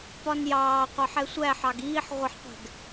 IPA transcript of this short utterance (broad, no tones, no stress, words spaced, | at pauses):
pɒnjɑː qʷɑħɛsʷæ ħɑɡiːħ ʁʷʌħqʷɛ̤ɡ